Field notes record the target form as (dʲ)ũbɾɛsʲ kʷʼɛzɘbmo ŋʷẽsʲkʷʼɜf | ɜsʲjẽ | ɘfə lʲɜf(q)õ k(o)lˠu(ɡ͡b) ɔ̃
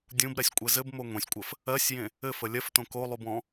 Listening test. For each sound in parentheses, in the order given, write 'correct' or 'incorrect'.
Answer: correct, incorrect: t, correct, incorrect: b

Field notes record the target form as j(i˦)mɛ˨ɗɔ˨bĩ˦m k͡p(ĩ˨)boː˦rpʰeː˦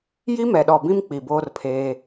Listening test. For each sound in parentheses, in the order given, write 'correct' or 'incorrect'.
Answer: correct, incorrect: i˨

